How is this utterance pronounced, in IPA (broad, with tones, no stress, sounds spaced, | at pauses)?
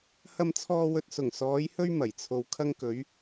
h ɐ˨ m t͡sʰ ɔː˨ w ɵ˨ t̚ s ʊ˨˩ ŋ s ɔː˨˧ j h ɵ˥ ɥ m ɐ˨˩ j t͡sʰ o˨ w kʰ ɐ˧ ŋ k ɵ˨˧ ɥ